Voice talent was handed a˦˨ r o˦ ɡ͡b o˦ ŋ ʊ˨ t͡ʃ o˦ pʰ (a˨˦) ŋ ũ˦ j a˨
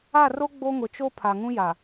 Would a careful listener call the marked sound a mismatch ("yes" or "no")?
yes